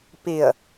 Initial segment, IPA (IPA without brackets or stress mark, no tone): p